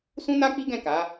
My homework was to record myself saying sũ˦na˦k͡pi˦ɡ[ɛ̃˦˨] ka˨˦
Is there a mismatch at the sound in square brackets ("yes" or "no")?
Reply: no